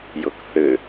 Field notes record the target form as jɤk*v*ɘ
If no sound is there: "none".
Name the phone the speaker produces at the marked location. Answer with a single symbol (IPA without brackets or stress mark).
θ